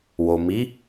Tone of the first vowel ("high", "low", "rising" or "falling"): low